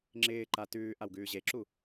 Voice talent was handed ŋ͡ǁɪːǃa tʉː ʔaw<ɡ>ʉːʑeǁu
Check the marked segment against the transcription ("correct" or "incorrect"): correct